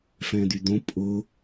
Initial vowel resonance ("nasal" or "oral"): nasal